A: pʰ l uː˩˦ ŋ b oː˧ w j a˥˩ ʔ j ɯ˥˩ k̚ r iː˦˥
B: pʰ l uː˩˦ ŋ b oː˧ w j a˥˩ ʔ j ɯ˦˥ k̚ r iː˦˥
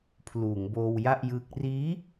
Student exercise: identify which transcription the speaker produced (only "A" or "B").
B